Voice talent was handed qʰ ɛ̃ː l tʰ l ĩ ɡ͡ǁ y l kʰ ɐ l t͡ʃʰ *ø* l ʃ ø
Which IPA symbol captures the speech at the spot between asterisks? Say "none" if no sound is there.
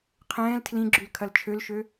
ø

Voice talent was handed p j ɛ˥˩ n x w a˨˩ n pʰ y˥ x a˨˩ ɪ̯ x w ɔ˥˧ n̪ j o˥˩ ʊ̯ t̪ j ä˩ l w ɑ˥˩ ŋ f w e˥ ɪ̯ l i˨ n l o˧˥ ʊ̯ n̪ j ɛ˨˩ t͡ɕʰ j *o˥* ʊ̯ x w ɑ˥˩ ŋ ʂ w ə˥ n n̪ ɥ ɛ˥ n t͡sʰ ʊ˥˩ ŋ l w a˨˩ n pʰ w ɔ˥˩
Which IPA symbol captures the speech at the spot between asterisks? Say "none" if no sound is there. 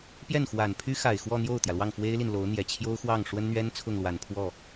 o˥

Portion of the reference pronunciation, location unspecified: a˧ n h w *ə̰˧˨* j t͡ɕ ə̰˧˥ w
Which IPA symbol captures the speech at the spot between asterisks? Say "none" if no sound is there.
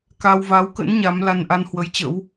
ə˨˦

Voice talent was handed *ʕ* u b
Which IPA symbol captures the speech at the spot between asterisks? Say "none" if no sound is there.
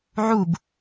ʕ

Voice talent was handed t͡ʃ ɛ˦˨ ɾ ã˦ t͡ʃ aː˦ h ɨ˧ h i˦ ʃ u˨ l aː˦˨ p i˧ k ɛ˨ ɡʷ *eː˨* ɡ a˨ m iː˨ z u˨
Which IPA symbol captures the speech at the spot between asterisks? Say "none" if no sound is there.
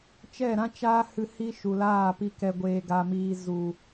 eː˨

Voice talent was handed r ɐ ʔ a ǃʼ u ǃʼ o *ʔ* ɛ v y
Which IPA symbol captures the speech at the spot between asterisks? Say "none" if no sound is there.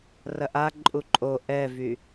ʔ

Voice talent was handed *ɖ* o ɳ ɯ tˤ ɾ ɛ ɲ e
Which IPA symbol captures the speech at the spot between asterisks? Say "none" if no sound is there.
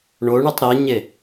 ɳ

